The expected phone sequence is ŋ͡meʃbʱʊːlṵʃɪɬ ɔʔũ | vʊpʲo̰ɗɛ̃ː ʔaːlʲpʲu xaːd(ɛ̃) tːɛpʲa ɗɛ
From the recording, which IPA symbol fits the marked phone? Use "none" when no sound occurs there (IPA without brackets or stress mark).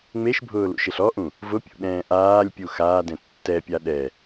ɛ̃